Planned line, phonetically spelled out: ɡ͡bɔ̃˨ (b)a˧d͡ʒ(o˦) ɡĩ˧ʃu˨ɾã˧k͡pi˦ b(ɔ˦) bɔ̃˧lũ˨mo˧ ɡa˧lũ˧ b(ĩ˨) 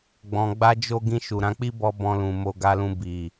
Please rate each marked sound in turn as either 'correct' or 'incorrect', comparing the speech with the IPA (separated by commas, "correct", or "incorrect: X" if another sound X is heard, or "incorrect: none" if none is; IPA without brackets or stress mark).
incorrect: ɡ͡b, incorrect: o˧, correct, incorrect: i˨